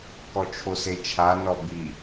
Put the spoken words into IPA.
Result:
k ɔ t͡ʃʰ o s e t͡ʃʰ a n ɔ b i

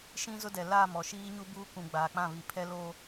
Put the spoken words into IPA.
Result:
ʃ ĩ˦ z ʊ˦ d ɛ˨ l aː˦˨ m ɔ˨ ʃ iː˦ ɲ u˦ b uː˦ k ũ˨ ɡ͡b aː˨ k͡p ã˦˨ β i˨ pʰ ɛ˦ l oː˦

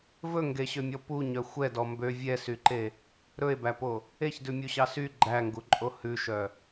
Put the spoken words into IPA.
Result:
v ɵ ŋ ɡ e ɕ ø mʲ ɔ p u ɲ œ xʷ ɛ d ɔ m b ø vʲ ɛ s y ǃ e | ɾ ɵ e̯ b æ p o | e ç d ʉ mʲ u ɕ ɑ s y ɡ͡ǃ æ ŋ ɡ u ǃʼ o h ʉ ʃ œ

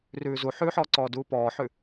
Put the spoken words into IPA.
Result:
r ʉː z u ħ ʉ ħ ɔː ǀ ɔː d uː p ɔː ħ ʉ

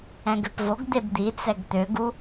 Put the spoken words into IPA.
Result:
ɛ̃ ɡ ø p v o ɡ d̪ e b d̪ i t͡s ɛ ɡ t̪ ø ɡ u

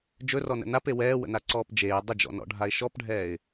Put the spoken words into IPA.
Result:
d͡ʒ ɵ r ɔ n ə̰ n a p e w ɛː w ə̰ n a ǀ ɔː p d͡ʒ eː dˤ ə d͡ʒ ɔ̰ n ɔ̰ ɖʱ a ɪ̯ ʃ ɔ p ɖʱ ɛː ɪ̯

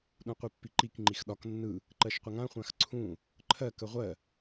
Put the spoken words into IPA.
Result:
ɗ ũ qʷ i pː i ǃ i k ŋ͡ǃ i x ɗ ɒ k nː ɯ | ǃ ɜ ʃ qʷ ə ŋ ã χʷ ã x ǀʰ ũ | ǃʰ ɜ k ə ʁʷ ɜ

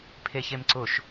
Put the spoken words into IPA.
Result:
pʰ e ç e m ǀ ʊ ʃ

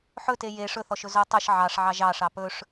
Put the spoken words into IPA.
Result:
ħ ɵ t e j e ʂ ɵ θ ɔ ʃ ɵ z o tˤ ɵ ʃ ʕ ɑ ʂ ʕ ɑ ʒ ɑ ʂ ɑ p ɵ ʂ

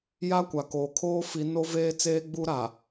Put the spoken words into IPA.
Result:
j a˦ kʷ a˨ k oː˨ kʰ oː˦ f i˨˦ n o˦ v eː˦ t͡s eː˦ ɡ͡b u˦ ɾ a˨

